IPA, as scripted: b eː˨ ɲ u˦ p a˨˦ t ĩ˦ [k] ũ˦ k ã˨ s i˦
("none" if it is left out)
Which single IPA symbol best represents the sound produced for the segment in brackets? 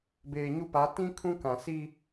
kʰ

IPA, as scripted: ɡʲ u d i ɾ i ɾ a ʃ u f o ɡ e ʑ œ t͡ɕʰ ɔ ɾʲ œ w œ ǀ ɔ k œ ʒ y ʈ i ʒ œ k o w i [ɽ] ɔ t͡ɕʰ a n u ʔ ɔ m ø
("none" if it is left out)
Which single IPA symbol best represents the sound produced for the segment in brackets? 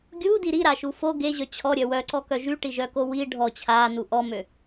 ɖʱ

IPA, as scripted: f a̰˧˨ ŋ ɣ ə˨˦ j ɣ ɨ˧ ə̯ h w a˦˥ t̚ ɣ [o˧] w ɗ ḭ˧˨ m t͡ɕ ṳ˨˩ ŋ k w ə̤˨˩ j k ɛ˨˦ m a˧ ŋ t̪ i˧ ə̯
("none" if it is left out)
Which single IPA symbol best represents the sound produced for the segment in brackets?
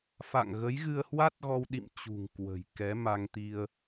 ɔ˧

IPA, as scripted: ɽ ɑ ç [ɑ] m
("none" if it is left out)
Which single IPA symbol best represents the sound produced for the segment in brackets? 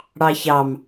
ɑ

